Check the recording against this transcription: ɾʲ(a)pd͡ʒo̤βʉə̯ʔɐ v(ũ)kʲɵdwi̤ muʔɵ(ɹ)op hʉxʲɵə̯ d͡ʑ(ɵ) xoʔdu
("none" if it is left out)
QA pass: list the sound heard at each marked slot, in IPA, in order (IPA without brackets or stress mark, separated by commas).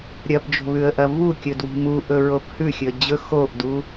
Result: ɐ, u, ɹ, ɵ